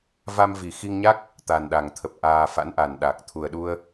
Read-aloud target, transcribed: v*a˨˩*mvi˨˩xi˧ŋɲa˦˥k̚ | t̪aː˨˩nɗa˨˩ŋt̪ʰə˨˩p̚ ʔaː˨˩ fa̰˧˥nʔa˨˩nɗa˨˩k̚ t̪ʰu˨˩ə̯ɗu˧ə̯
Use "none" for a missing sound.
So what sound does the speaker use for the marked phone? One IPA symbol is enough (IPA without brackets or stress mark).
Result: a˧